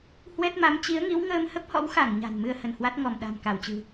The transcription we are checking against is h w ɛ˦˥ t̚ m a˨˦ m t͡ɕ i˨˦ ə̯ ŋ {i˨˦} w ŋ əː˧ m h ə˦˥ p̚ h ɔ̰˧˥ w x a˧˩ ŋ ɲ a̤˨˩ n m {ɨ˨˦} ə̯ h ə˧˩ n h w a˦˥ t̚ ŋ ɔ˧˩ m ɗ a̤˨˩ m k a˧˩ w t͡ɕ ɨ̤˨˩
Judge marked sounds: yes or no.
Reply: yes, no

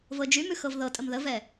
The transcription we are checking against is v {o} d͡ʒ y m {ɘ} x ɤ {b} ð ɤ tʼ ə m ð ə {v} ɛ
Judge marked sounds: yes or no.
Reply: no, no, no, yes

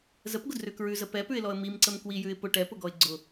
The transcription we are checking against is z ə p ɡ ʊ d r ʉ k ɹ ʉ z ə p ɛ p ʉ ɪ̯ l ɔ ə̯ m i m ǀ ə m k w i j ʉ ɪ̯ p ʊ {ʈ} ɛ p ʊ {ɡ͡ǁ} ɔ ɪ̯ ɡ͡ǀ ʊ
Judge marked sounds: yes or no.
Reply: yes, no

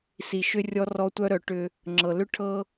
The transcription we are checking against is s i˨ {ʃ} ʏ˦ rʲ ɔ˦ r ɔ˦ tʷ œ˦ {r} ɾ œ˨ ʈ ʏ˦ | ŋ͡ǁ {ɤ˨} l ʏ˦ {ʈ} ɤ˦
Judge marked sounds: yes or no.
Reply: yes, no, yes, no

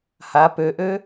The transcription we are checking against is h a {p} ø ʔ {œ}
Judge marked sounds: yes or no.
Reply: yes, no

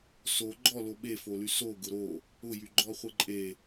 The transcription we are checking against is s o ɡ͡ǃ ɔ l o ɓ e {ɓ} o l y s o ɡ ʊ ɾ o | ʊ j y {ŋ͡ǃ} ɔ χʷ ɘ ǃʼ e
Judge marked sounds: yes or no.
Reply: no, no

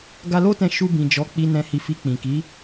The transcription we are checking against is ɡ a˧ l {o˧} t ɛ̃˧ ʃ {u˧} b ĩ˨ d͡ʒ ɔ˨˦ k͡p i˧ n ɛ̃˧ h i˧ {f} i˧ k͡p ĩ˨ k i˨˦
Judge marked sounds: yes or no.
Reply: no, yes, yes

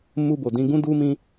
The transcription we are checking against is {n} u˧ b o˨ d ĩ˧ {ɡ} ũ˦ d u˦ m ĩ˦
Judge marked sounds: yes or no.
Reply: no, yes

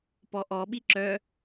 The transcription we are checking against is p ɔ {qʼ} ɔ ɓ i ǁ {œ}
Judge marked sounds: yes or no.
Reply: no, yes

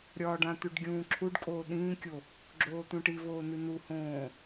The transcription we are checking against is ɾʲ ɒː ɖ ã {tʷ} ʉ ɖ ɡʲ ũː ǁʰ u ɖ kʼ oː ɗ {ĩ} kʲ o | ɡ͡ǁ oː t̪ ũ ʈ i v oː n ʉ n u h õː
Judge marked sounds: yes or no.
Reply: no, no

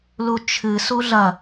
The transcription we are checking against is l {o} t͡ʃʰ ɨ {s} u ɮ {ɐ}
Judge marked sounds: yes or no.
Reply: no, yes, yes

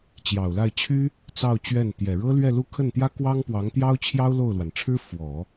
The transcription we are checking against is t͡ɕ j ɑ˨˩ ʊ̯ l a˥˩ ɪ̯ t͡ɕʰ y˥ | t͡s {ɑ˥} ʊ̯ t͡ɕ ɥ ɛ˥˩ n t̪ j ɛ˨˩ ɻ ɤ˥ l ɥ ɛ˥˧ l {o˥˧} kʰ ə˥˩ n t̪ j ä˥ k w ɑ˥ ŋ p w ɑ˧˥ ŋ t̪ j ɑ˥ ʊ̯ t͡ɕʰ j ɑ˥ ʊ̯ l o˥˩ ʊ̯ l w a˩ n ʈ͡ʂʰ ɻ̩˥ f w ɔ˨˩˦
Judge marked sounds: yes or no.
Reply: no, no

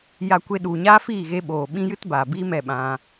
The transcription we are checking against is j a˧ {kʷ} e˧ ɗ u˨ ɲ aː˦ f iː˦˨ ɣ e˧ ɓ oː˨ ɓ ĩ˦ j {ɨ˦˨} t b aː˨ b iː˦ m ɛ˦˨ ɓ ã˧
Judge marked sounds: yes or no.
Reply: yes, no

